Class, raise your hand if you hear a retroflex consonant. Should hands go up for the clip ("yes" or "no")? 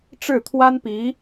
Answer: yes